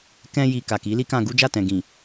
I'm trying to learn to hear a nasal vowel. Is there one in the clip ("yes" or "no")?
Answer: yes